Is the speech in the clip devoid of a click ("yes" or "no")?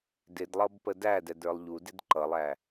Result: no